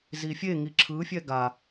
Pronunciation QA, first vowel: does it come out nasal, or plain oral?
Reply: oral